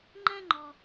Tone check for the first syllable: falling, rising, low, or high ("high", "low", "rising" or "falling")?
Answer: high